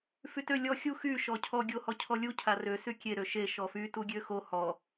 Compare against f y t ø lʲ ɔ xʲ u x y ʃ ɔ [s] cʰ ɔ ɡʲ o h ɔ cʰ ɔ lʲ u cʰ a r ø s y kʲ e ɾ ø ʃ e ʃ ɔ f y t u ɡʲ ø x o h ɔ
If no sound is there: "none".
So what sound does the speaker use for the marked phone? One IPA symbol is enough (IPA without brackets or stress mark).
none